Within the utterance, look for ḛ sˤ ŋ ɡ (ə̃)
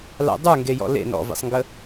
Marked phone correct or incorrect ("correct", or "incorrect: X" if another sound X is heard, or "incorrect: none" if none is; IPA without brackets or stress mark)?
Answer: incorrect: ə